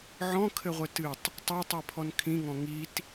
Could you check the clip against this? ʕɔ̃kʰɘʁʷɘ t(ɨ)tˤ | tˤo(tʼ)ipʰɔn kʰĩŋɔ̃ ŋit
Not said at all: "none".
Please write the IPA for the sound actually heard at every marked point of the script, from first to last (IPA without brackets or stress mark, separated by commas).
ɨ, tˤ